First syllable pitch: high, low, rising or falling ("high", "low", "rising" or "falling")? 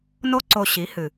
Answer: high